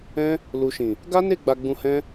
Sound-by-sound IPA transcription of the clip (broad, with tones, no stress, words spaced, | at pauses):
ɛ̃˦ | lu˨ʃĩ˨ | ɡa˦ne˦˨ ɡ͡ba˧ɡ͡bũ˧hɛ̃˦